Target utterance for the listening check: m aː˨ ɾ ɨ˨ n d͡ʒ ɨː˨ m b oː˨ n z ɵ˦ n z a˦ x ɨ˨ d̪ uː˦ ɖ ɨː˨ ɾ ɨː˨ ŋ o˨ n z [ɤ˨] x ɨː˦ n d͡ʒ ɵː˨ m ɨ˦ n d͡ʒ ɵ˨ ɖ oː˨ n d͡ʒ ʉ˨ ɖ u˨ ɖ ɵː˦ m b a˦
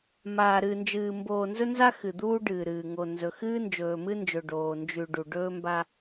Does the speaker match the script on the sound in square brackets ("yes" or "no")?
no